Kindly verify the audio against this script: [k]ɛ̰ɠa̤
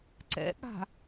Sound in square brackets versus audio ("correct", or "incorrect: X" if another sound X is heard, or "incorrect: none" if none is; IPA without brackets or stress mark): incorrect: ǀ